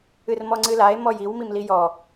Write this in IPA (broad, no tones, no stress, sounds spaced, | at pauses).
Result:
ɨ r m ɔ ŋ͡ǀ ɨ l a e̯ m ɔ j i w m i m l i j ɔ